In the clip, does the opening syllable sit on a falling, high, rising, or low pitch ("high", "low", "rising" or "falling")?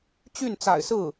falling